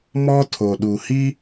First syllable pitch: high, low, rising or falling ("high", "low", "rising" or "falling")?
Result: high